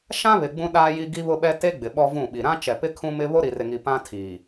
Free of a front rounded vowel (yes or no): yes